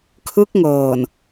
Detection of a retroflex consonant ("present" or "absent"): absent